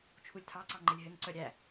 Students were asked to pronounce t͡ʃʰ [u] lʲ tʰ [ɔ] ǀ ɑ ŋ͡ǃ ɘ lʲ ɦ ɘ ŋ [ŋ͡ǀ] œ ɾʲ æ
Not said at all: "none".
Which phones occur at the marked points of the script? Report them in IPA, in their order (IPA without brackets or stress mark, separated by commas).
u, ɑ, ǀ